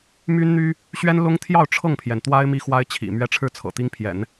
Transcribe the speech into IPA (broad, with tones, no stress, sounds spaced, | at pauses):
m y˥ n n̪ y˥ | ɕ ɥ ɛ˥ n l ʊ˥ ŋ t̪ʰ j ɑ˥˧ ʊ̯ ʈ͡ʂʰ ɤ˥˩ ŋ pʰ j ɛ˩ n t̪ w a˥ ɪ̯ m i˥ x w a˥ ɪ̯ t͡ɕʰ ḭ˨˩ m ɥ ɛ˥ ʈ͡ʂʰ ɻ̩˥˩ t͡sʰ ɤ̰˨˩ t̪ i˥ ŋ pʰ j ɛ̰˨˩˦ n